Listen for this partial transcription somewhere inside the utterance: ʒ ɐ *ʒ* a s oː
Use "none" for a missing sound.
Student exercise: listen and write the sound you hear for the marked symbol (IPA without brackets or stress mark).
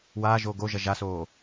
ʒ